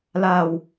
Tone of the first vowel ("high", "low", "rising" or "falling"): low